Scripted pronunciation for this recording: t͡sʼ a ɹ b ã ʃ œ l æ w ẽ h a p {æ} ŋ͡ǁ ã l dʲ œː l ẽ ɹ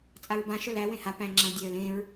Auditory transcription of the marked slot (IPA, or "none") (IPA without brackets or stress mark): æ̃